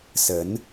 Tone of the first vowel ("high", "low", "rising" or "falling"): rising